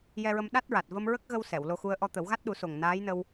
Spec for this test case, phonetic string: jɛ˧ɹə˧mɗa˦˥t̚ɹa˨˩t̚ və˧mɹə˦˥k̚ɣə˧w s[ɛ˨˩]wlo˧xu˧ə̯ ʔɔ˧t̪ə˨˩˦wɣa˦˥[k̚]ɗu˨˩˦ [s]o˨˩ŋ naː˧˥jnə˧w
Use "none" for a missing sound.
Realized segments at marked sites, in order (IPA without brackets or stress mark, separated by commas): ɛ˨˩˨, t̚, s